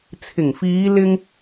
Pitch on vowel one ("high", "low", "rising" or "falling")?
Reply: low